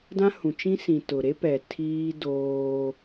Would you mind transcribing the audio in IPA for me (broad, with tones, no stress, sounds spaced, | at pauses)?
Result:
d ã˦ h ũ˨ t͡ʃ ĩ˦ s ĩ˨ t ʊ˨ ɾ e˦ p ɛ˨ tʰ iː˦ d oː˦